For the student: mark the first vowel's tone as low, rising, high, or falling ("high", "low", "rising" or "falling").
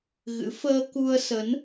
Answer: rising